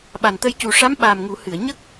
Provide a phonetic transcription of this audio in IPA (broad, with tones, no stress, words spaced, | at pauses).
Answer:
ɓa˨˩nt̪ə˧jcu˨˩ ʂa˧˥mɓa˨˩m ŋu˨˩˦ hɨ˨˩˨ə̯ ɲə˦˥k̚